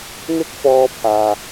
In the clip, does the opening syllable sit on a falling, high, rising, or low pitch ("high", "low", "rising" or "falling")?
high